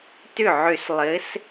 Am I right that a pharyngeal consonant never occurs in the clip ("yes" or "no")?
no